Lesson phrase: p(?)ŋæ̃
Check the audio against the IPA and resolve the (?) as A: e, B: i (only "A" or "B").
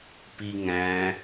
B